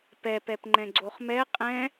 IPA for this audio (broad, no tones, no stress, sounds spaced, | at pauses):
p ɛ p ɛ p ŋ͡ǃ ɛ̃ ɡ͡ǀ o χ m ɛ qʼ ɛ̃